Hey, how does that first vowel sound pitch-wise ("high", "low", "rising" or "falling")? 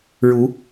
rising